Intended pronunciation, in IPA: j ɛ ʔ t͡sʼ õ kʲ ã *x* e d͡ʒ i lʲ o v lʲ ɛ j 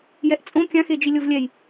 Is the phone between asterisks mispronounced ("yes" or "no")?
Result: no